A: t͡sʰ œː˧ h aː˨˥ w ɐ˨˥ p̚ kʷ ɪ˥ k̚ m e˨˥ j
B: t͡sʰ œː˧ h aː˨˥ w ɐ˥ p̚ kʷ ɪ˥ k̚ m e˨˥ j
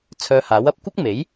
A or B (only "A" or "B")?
A